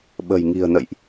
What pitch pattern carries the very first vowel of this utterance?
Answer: low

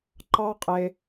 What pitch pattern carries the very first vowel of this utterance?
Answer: high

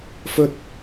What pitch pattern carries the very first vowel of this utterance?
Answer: high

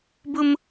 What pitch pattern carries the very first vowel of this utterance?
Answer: high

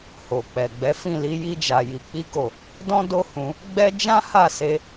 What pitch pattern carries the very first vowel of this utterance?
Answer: low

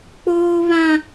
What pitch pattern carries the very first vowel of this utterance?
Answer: high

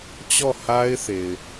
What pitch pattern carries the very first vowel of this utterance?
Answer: falling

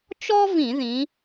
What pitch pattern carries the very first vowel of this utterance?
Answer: high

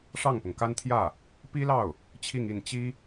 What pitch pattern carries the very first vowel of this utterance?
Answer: falling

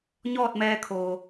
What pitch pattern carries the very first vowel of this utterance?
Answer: falling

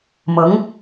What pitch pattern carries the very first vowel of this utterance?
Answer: rising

